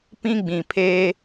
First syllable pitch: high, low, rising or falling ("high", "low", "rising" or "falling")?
high